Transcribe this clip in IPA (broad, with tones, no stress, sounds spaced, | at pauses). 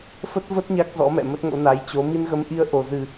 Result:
f ə˦˥ t̚ v ə˦˥ t̚ ɲ a˦˥ k̚ z ɔ̰˧˥ m ɛ̰˧˨ m ə˦˥ t̚ ŋ o̰˧˥ n a˨˦ j t͡ɕ o˨˦ m i˧ n ɣ ə˨˦ m ʔ i˧ ə̯ ʔ o˨˩ z ɨ˨˩